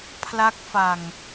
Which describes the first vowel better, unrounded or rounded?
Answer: unrounded